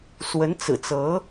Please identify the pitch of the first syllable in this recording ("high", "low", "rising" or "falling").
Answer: rising